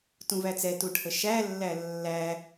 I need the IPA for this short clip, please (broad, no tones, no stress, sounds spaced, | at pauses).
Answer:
t ũ v æ t͡s ɛ t u ʈʰ ə ʃ æ lː æ lː æ